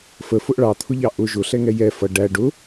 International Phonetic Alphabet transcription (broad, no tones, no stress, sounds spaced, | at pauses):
f ə f ʊ ʔ ɭ ɑ t̪ʰ ʊ ʎ ɑ ʔ ʊ ʒ ʊ ɬ ɛ ŋ ɛ j ɛ f ʌ ɖ æ ɖ ʊ